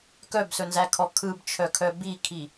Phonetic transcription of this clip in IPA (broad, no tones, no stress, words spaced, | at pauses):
kœbsɵnzækʰɔ kʰɯbt͡ʃʰœkʰœ bikʰi